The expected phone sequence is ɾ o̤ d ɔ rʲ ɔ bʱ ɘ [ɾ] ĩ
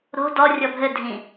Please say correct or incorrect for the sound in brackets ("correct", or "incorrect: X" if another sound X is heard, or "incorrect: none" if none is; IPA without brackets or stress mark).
incorrect: dʱ